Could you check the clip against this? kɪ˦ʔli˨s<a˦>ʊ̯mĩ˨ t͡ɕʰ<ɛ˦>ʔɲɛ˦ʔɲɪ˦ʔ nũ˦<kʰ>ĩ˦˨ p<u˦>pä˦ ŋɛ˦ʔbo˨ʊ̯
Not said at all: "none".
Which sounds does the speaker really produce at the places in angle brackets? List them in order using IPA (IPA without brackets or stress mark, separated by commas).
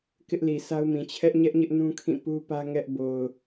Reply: a˦, ɛ˦, kʰ, u˦